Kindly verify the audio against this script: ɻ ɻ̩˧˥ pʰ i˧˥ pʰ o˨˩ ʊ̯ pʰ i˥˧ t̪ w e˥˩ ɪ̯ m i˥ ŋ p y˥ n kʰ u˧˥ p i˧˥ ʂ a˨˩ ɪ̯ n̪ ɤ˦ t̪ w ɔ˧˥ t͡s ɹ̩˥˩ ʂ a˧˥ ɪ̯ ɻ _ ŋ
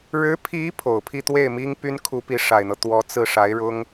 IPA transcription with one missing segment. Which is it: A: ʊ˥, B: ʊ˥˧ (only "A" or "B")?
A